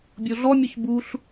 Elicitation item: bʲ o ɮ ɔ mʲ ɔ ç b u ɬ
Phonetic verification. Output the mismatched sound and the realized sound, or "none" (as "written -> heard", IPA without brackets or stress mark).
none